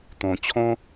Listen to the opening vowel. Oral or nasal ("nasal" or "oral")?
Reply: nasal